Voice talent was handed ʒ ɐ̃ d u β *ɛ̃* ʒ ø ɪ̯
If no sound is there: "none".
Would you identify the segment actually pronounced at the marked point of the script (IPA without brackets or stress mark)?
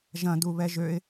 ɛ